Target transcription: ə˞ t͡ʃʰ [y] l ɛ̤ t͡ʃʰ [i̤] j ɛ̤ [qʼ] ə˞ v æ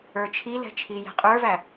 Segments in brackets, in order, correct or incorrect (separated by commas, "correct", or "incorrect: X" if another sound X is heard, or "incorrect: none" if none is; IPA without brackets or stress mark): incorrect: i, incorrect: i, correct